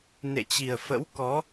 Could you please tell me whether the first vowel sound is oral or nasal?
oral